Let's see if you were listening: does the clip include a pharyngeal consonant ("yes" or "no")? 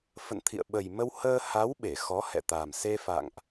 no